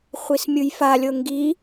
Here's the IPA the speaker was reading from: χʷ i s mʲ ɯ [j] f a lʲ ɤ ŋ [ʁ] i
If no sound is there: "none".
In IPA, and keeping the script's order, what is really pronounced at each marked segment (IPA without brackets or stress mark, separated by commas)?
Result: j, ɡ